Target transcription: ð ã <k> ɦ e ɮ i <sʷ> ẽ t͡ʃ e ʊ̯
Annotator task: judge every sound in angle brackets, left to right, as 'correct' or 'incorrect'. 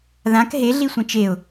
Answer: correct, correct

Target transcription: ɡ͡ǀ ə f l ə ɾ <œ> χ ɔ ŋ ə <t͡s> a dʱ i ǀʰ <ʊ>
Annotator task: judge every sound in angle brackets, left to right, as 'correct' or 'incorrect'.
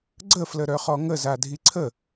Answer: correct, incorrect, incorrect

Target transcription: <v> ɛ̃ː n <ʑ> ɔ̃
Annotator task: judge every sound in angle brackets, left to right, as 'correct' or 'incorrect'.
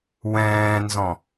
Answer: incorrect, incorrect

